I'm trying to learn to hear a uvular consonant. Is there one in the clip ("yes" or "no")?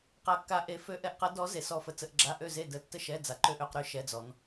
yes